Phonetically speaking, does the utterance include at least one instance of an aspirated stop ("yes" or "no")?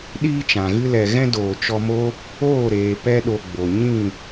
no